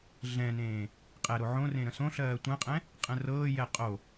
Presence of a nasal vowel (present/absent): present